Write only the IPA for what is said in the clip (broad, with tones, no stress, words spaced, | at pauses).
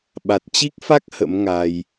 ɓa˨˩t̚t͡ɕi˦˥k̚fa˦˥k̚ hə̰˧˥mŋa˧j